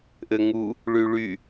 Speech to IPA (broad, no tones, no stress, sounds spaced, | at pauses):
ʔ ɘ ŋ u | ɭ y ɭ y